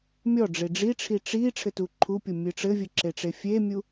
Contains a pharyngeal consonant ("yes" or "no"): no